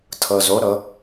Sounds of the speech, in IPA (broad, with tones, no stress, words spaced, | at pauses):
tʰɤ˧zo˧˥ ɾɤ˧˥